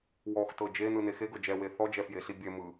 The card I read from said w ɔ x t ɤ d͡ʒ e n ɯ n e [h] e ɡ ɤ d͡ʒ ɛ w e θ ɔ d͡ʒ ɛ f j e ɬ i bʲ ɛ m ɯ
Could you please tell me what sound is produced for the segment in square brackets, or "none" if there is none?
x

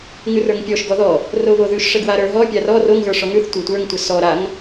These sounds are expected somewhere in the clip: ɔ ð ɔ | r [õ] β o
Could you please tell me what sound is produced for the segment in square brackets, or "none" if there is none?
o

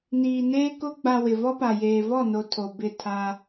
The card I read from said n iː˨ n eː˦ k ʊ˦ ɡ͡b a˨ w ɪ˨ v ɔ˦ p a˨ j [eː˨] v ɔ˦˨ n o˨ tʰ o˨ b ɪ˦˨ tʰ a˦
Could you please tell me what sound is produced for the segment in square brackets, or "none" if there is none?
eː˨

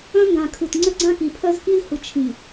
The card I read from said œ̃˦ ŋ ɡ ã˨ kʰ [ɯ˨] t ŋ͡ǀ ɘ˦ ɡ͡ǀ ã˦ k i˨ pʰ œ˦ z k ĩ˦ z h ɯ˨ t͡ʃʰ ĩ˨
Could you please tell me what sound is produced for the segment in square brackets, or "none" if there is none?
ɯ˨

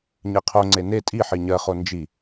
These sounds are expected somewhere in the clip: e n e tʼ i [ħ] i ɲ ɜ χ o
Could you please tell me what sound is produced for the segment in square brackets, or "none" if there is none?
ħ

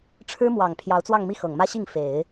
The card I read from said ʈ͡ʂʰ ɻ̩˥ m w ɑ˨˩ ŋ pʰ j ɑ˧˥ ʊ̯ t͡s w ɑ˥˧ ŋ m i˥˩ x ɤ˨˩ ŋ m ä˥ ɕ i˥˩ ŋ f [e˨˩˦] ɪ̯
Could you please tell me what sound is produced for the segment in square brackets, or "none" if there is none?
e˨˩˦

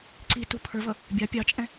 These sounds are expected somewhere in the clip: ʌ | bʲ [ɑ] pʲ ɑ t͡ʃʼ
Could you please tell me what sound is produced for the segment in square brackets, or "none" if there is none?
ɑ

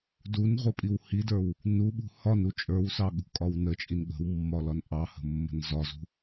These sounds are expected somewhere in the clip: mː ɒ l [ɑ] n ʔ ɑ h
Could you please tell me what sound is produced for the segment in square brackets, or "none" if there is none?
ɒ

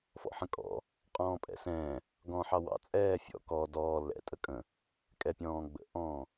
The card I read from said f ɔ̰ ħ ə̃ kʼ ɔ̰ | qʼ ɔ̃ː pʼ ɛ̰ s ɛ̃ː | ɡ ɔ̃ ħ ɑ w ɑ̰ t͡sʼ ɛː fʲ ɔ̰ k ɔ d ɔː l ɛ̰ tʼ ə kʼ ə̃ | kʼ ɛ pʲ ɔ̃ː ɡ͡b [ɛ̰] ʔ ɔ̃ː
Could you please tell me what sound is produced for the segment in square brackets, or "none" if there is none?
ə̰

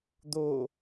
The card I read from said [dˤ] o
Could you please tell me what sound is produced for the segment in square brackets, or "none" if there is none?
d̪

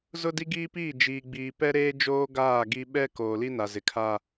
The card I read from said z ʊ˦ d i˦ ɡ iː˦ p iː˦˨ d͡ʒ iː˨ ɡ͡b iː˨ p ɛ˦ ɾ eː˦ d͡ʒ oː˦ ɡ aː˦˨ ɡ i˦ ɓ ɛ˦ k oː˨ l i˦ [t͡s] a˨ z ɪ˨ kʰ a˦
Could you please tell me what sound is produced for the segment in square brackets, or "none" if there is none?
n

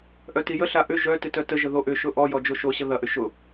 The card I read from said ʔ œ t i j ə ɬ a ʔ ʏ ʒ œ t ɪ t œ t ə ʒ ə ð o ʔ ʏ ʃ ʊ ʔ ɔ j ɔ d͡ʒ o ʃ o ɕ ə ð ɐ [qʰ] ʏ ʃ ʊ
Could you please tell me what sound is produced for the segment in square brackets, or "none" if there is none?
ʔ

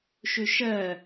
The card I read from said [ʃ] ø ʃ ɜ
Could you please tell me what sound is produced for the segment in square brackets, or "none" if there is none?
ʃ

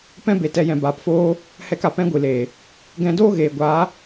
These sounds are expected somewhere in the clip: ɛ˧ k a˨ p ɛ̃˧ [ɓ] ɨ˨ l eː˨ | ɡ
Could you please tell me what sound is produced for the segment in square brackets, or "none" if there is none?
ɡʷ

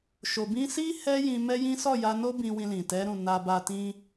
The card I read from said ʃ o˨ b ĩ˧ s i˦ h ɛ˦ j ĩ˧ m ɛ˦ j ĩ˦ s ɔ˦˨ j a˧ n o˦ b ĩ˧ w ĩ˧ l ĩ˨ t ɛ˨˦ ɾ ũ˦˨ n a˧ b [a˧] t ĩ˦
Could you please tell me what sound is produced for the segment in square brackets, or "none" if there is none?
a˧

